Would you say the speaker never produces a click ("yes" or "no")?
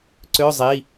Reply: no